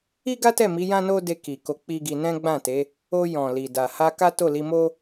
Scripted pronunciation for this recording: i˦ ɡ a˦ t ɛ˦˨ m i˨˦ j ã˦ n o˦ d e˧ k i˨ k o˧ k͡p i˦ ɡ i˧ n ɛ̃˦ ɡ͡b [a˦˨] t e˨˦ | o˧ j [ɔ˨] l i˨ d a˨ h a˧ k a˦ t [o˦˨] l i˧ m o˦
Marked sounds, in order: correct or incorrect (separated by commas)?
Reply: incorrect, incorrect, correct